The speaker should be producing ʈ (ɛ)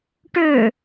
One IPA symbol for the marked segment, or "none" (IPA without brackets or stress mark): ø